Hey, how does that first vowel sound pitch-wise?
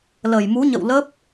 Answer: low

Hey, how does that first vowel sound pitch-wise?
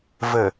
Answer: low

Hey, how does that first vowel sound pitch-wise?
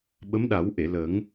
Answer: rising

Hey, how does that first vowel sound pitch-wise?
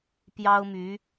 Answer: high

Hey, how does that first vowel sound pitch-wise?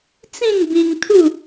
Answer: falling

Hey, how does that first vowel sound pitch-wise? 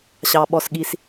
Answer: low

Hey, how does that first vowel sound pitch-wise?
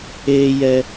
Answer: low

